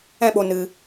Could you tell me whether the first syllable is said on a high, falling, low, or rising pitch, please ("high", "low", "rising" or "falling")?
high